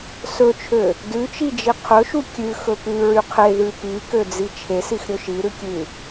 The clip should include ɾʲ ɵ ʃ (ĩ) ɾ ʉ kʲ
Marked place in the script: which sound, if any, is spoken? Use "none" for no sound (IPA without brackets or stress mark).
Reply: i